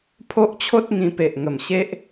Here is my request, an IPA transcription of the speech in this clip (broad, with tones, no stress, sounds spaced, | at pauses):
pʰ o˦ ʔ t͡ɕʰ o˦ t̚ ŋ ĩ˧ p e˨ ʔ ŋ ə˨˩ m ɕ e˦ ʔ